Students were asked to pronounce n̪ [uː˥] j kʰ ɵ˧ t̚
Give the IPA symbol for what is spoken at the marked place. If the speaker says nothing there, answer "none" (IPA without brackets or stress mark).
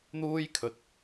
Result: uː˥